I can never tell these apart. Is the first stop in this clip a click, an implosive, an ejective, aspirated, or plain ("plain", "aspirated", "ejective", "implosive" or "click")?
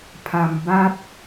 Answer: aspirated